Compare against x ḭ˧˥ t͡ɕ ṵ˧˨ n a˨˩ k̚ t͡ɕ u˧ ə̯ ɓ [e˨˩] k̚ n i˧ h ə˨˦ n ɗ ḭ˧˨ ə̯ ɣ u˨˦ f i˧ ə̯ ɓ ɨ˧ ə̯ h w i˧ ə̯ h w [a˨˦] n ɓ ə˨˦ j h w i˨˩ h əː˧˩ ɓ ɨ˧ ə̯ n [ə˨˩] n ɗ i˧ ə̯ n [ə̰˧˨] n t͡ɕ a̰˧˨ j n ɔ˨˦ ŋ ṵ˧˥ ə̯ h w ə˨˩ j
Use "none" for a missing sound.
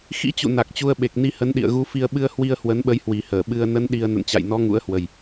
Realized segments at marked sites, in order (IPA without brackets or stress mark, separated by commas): e˨˩, ə˨˦, ə˨˦, ə̰˧˨